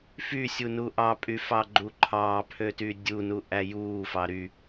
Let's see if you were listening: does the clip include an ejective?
yes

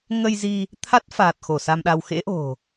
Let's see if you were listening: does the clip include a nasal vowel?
no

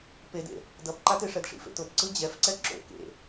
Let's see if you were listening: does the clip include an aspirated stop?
no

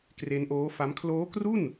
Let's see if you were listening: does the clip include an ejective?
no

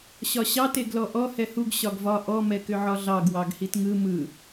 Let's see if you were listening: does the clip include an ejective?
no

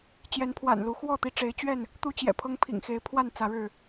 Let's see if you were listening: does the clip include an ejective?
no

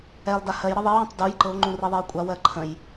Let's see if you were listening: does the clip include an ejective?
yes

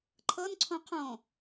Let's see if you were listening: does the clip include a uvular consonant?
yes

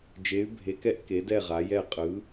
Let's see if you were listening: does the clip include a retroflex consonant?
no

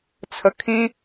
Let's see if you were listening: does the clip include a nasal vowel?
yes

